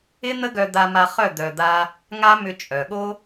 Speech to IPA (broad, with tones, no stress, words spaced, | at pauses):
ɪ˦n̪ə˦ɡœ˧ d̪a˧ma˧ χœ˦˨ d̪œ˧d̪a˦ | ŋa˦mʏ˧ t͡ʃʼœ˨ɠo˦